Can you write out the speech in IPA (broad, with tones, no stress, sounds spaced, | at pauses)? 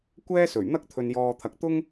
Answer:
kʷ ɛː˥ s ɵ˨˩ ɥ n̪ ɐ˥ k̚ t̪ʰ ɵ˨ n j ɔː˨ t̪ʰ ɐ˨ k̚ t̪ ʊ˥ ŋ